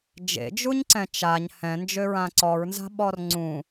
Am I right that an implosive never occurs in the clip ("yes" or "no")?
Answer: no